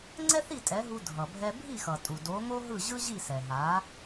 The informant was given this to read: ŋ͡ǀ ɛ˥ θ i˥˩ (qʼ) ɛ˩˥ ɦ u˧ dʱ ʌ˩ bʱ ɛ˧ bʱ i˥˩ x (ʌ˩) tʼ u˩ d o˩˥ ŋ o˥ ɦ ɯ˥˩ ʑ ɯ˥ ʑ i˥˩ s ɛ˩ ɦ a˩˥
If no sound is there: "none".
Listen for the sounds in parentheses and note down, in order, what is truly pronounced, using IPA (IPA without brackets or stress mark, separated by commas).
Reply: tʼ, ʌ˩